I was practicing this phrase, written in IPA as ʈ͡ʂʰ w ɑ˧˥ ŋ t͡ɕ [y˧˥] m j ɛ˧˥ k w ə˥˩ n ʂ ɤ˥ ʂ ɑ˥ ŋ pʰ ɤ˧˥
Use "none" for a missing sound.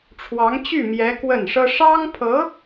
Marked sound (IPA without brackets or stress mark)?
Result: y˥˩